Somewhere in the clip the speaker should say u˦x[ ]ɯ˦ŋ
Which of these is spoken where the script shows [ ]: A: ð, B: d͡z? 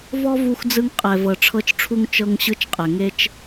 B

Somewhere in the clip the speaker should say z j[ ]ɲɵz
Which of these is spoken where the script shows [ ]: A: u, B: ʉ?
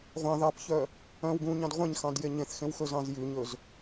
B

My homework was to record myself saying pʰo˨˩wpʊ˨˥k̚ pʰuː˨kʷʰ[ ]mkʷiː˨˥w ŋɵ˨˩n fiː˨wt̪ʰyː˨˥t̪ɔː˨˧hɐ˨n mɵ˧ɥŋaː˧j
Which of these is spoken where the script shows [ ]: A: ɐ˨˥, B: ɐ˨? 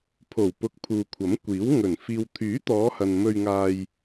A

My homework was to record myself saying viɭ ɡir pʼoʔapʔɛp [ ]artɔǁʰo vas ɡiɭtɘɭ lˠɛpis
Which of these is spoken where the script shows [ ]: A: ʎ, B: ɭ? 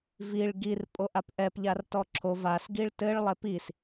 A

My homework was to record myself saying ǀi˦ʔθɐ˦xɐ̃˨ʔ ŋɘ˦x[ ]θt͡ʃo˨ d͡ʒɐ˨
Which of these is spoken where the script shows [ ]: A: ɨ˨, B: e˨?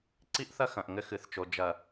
A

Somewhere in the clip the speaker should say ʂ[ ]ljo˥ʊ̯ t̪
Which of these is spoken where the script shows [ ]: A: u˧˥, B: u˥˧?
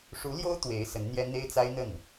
A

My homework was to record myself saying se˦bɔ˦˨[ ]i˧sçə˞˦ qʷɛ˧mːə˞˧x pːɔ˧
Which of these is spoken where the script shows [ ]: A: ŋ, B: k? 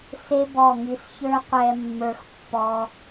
A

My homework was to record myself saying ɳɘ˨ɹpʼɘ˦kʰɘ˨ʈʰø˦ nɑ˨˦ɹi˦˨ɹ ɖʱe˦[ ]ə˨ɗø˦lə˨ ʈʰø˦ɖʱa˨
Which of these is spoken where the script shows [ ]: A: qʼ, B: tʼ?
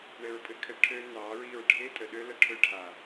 B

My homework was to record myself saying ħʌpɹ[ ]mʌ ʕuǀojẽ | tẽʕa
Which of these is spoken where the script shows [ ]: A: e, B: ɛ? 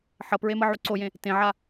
A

